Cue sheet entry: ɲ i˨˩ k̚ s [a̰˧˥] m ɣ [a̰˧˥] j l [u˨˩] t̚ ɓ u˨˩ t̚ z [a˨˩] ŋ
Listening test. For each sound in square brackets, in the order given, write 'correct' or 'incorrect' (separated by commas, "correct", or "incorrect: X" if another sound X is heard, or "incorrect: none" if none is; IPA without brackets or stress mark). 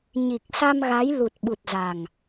incorrect: a˧, incorrect: a˨˦, correct, correct